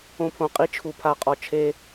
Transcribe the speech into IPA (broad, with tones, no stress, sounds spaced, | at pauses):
õ˦ pʰ õ˧ qʼ i˦ t͡ʃʰ u˧ pʰ a˦˨ qʼ ɔ˧ t͡ʃʰ e˦